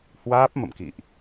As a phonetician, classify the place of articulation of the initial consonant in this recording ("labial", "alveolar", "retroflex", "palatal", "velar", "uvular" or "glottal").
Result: glottal